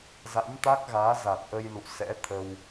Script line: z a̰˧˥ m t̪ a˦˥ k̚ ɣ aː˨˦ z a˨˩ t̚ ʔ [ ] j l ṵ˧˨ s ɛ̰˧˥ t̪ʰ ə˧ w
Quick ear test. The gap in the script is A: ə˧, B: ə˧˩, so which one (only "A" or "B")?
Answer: A